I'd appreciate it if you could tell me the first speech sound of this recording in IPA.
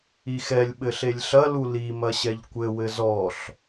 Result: i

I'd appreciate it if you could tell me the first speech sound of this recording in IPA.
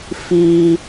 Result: f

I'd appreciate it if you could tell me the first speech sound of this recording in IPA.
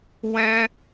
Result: w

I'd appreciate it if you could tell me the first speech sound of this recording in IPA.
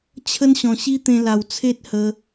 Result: t͡ɕʰ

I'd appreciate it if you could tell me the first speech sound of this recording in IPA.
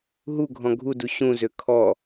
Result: ɦ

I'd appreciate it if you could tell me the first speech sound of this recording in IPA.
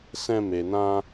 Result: s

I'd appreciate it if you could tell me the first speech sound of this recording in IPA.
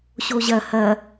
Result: ɕ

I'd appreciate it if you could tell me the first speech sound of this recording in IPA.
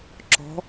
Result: ǁ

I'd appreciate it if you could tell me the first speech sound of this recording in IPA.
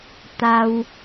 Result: t̪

